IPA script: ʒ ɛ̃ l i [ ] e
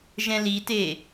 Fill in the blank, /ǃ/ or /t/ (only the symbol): t